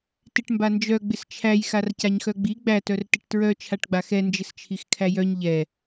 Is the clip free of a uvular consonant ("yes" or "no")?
yes